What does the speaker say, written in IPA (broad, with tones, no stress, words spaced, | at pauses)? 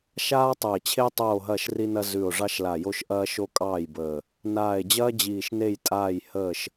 ʃaː˦tˤɵ˨˩e̯t͡ɕʰe˦ tˤoː˦˨ɦɐː˦˨ʃri˦nɐ˦ zʉ˨˩o̯ʐɑ˦ʃla˨˩jo˦ʃ ʔɐː˦ʃo˦kʼɑː˦˨jbəː˨˩ | naː˨˩e̯d͡ʑɐː˦ d͡ʑiː˨˩ʃne˦˨jtʼaː˦˨j həː˦˨ʃ